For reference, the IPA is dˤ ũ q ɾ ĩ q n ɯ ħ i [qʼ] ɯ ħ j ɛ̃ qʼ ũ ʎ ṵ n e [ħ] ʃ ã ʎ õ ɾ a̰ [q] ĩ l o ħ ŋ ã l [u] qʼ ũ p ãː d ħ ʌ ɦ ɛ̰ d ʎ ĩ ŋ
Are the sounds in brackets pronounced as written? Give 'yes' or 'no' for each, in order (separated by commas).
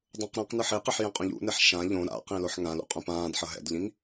no, yes, yes, no